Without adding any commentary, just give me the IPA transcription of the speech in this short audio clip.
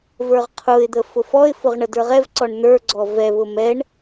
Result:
və˞ʁqʰʊɪ̯d̪ə fʊfɔɪ̯fʊʁ ɳədə˞ʁɛvǀɔɳ n̪ə˞ɡ͡ǀɔ vɛβʊ mɛɳ

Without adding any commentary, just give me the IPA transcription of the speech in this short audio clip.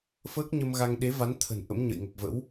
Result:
fəː˦˥k̚ɲə˧mɣa˧ŋ ɗe˨˦va˨˦n t̪ʰə̤˨˩n ʔə̰˧˥mɲə̰˧˨jŋə˨˩p̚və̰˧˥w

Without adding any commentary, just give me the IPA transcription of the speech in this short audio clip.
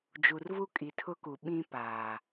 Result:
d͡ʒu˨rvu˦kʼi˨ tʰʊ˦ku˨ ɓĩ˦ paː˨

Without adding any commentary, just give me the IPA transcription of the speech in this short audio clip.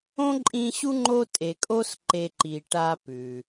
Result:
õ˥ǃʼĩ˦ɕu˥ŋ͡ǃo˦ tʼe˨ kʼo˦s ǃe˨ǃi˩ ʈa˨ pʉ˩

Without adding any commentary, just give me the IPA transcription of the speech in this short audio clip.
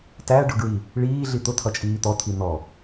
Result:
tæɖʊɡɹi | ɭiːɮi t̪ʊt̪ʰʌt͡ʃʼiː t̪ɔt̪ʰi n̪ɔ

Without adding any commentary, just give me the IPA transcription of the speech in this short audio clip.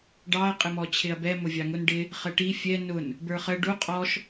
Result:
ɖɑɐ̯ qʼɪmɔt͡ɕʰɪɐ̯bɛ mʊvʲɑŋʊn ɖɪ | χəʈi fʲɛ nʊn | bə˞χə ɖu qʼɔʃ

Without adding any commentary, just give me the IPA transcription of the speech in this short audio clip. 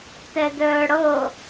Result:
tɛdœːɽɤ

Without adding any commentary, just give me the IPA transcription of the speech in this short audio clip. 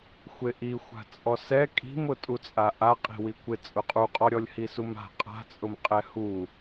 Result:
xʷeʔi xʷa̤t͡sʼɔsɛ kʼi̤mʊ tʼut͡sʼaʔaqʼi̤ wikʷɪ t͡sʼʊqʼuqʼɔɾʲɔlʲ hisuma̤ qʼa̤t͡sʼʊm qʼɛhu

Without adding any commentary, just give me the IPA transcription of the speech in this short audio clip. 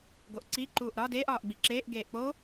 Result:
ɡoʔǀi ǃuːʔɾɒ deːʔ ɒːʔɡ͡biǁeːʔ ɡeːʔk͡poː

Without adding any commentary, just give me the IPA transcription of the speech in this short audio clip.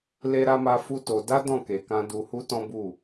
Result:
le˧ɾa˧ma˧ fu˦to˧ da˦dɔ̃˦˨ke˨kã˧ du˧hu˦tɔ̃˦bu˦˨

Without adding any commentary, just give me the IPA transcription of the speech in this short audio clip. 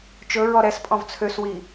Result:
t͡ʃɵɹɔ ɾɛs pʼɔ̃vt͡sʰøswi

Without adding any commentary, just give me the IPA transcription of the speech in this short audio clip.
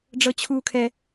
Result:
ɖ͡ʐɤt͡ɕʰuːkʰɛ

